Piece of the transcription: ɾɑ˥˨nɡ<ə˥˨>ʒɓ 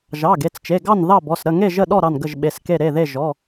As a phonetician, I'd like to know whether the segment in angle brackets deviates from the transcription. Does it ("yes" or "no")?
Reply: no